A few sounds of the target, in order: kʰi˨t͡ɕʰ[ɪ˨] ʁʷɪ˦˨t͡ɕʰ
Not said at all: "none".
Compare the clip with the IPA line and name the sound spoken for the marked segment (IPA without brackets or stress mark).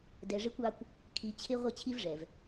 ɪ˦